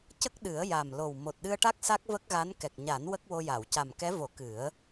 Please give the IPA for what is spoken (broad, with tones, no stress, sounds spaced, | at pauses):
c ə˦˥ k̚ ɗ ɨ˨˩˦ ə̯ j a˨˩ m l o˨˩ w m o˨˩ t̚ ɗ ɨ˧ ə̯ ʈ a˦˥ k̚ s a˦˥ k̚ v ə˦˥ k̚ ɣ a˧˥ n k ɛ˨˩ k̚ ɲ a˨˩˦ n w ə˦˥ k̚ w o˧ j a˨˩˨ w c a˨˩ m k ɛ˧˥ v o˨˩˦ k ɨ˨˩˦ ə̯